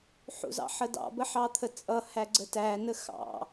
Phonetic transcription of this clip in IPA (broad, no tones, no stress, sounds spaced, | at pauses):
ħ ṵ z ɑ̰ ħ ə d ɑ̰ b ə ħ ɑ t̪ʰ ə t͡sʼ ʌ h æ ɡ͡ǀ ə t æ n ə x ɑ̰